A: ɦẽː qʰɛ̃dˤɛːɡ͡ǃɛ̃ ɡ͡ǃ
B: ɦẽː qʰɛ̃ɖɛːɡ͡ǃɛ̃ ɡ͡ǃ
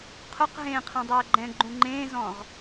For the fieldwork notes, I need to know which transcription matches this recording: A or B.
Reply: A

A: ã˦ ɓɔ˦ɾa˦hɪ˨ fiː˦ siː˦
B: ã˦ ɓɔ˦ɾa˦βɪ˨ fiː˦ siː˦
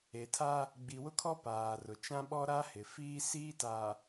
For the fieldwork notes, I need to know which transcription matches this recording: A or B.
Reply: A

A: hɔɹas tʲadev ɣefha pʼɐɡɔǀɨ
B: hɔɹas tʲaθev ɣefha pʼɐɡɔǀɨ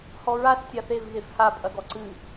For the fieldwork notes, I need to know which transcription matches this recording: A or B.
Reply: B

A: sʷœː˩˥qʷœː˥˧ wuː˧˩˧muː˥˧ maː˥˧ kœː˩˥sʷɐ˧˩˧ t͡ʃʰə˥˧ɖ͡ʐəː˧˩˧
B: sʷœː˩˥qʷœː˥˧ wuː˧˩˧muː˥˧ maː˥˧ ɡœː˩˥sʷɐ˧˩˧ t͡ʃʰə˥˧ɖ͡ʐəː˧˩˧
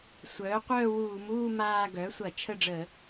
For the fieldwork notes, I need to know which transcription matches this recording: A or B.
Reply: B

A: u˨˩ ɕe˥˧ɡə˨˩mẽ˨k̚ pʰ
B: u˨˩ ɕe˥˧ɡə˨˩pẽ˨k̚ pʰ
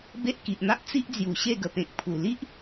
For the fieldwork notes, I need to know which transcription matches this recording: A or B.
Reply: B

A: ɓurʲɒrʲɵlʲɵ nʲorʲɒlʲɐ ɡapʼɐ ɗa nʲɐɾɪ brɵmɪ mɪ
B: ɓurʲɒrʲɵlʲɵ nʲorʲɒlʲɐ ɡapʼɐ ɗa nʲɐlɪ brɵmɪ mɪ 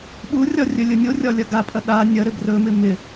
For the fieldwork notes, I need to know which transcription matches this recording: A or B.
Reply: A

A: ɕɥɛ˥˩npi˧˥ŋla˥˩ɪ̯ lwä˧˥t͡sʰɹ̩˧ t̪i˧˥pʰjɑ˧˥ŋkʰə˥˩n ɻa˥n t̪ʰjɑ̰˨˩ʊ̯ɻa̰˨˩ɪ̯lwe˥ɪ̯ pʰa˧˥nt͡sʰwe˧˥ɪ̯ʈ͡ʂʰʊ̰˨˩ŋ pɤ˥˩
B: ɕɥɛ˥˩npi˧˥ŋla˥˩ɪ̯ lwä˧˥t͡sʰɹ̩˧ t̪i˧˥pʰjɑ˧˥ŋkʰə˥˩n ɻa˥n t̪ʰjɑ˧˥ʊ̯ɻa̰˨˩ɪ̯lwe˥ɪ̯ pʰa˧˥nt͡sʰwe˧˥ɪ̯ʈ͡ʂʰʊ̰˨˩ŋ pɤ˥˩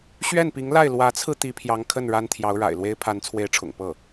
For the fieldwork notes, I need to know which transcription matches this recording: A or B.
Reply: B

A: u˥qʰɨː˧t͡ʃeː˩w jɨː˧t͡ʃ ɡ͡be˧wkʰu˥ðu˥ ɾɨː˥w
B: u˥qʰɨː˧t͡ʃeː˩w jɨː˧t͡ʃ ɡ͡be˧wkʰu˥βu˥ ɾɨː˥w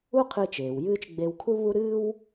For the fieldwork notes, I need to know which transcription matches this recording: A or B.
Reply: B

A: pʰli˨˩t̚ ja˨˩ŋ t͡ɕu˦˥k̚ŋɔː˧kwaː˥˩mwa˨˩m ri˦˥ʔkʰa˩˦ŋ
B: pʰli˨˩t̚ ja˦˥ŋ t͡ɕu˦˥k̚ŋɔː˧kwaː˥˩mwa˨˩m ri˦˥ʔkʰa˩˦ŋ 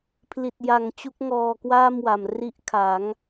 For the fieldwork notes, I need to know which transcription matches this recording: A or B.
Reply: A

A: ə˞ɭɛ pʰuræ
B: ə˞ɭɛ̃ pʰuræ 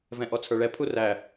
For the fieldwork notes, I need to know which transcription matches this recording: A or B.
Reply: A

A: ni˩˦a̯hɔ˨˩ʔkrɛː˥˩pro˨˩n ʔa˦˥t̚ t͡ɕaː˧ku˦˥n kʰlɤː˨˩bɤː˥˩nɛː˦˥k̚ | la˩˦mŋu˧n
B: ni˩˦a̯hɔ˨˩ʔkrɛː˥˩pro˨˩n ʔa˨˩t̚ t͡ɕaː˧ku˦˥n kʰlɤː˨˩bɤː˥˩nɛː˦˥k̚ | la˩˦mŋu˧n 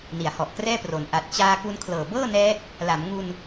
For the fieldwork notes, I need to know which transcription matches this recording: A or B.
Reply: B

